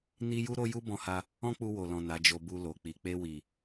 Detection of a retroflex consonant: absent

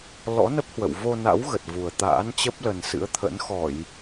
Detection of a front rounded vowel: absent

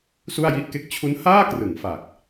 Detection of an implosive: absent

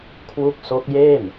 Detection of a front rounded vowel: absent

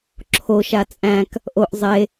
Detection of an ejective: present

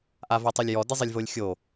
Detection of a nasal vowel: absent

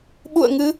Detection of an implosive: present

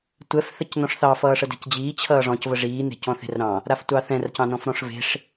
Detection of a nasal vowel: present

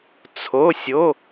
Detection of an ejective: absent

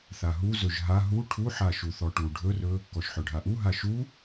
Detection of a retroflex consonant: present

